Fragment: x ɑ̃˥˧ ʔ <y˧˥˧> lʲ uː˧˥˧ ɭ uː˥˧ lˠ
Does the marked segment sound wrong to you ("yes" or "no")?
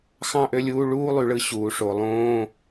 yes